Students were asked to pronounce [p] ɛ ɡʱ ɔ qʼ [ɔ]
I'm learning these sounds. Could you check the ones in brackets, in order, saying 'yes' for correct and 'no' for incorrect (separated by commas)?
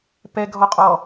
yes, yes